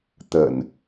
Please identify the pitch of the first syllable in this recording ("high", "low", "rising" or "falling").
low